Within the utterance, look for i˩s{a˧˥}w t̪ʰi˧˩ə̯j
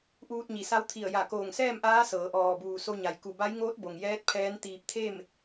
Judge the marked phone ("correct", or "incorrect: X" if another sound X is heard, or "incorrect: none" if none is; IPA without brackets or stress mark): correct